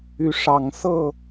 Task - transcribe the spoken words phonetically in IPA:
y˨˦ ʂ ɑ˨˩ ŋ s ɤ˥˨

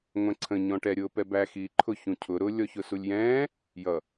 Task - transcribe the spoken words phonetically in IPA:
ŋʷ ɛ̃ ǀʰ ə̃ ɲ ɔ̃ ʈ ɛ ɾʲ ʊː p ɛ b æ x iː ǃʰ ʊ ç ũ cʰ ʊ ɾ ʊ lʲ ɔ ç ʊ s u lʲ j ɛ̃ː | j ʌ

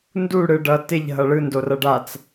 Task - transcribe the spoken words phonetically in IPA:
n d u ɽ ɯ ɖ ʌ t ɪ ʎ ɦ ʌ ɭ ɯ n d o r ʌ ɖ a t͡s

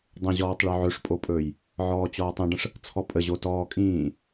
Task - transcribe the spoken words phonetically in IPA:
dˤ ə̃ ʑ ɔː tˤ ɭ ɵ ʕ ɵ ʂ pʼ o pʼ ɵː j | ʕ ɔː t͡ɕ ɔː tˤ ĩ ɖ ə̃ ʂ | t͡sʰ ɔ pʼ ə ʑ o t ɔː kʼ ĩː

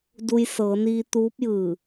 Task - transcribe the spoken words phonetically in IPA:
d u˧ j s ɤː˩˧ n iː˧ t̪ uː˧˥ p̚ j ɯː˧˩

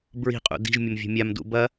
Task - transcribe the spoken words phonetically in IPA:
b ɹ i̤ qʼ ṵ d i̤ ʒ mʲ ɐ m vʲ o̤ mʲ a m d ṵ b ɐ

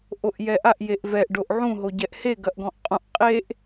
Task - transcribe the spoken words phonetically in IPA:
ʔ o ʔ j ɛ ʔ a ʔ j e ʔ v ɛ ʔ ɖ o ʔ ʕ ũ ɦ o ɟ ɛ ʔ h e ɡ ɐ ʔ ɡ ɔ̃ ʔ qʼ ũ ʔ qʼ e ʔ

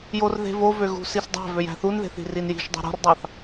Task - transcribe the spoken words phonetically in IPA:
j o r ð e̤ v o v ø ɣ ṳ s i s dˤ æ̤ v ø j æ̤ θ u n ð e̤ θ i̤ r i n j i̤ ʃ dˤ ṳ ɾ o̤ r dˤ ɑ θ

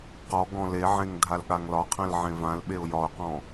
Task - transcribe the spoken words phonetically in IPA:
q ɔ ɡ ɔ̃ l e ʕ ẽ ŋ dʱ a l ɠ a ŋ l ɒ qʰ ɛ̃ l ʕ ẽ v ã l ɓ e ʊ̯ j ɒ ʊ̯ q ɔ̃

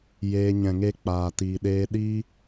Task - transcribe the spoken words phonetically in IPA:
j eː˧ ɲ ɛ̃˨ ŋ e˧ k͡p aː˨ t iː˨ ɗ eː˧ ɗ iː˦

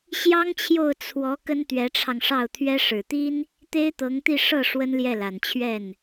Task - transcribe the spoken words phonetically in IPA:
ɕ j ɑ˥ ŋ t͡ɕʰ j o˥˩ ʊ̯ t͡sʰ w ɔ˧˥ k ə˥ n t̪ ɥ ɛ˧˥ ʈ͡ʂʰ ɑ˧ ŋ ʂ ɑ˥˩ ʊ̯ t̪ʰ ɥ ɛ˥ ʂ ɻ̩˨˩ t̪ i˥ n | t̪ e˥ ɪ̯ t̪ ɤ˧˥ ŋ t̪ i˥˧ ʂ ɤ˥˩ ʂ w ə˥ n l j ɛ˥˩ l a˨˩ n t͡ɕʰ ɥ ɛ˥˩ n

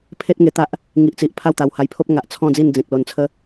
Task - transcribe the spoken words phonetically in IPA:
pʰ e˦ t̚ ŋ e˧ t̪ a˦ ʔ | ŋ i˨ ʔ t͡s i˨ ʔ pʰ a˥˧ w t̪ a˨˩ w h a˧ j pʰ o˦ p̚ ŋ a˨ ʔ t͡sʰ ɔ̃˥˧ d͡z i˥˧ n d͡z ẽ˨ k̚ l o˧ n t͡sʰ ə˦

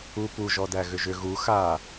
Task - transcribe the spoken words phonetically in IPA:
u p u ʒ ɔ d æ ɣ ʏ ʒ ʏ ɣ u x a

